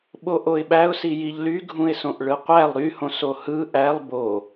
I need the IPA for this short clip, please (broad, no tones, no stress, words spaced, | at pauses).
ɓoʔoɪ̯ɓæʊ̯si jiʎlyɡʱũɪ̯sõʔ ɭɯqʷælˠ ɾyhõs ohɯ ʔælˠ bo